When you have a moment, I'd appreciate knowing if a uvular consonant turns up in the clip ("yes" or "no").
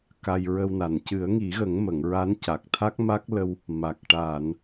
no